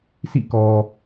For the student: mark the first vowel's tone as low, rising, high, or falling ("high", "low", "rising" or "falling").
falling